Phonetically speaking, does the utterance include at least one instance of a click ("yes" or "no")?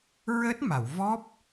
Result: no